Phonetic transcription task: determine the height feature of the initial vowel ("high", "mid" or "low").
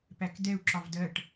low